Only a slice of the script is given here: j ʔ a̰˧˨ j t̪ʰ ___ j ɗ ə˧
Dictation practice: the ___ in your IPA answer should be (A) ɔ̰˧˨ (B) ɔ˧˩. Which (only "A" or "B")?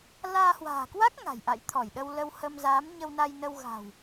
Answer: B